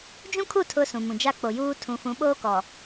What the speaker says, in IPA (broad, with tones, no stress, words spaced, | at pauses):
d͡ʒũ˦kʰu˦˨ tʰʊ˦sũ˨mũ˨ d͡ʒa˦k͡po˨ juː˦ tʰũ˨fũ˨˦ɓoː˦ kɔ˨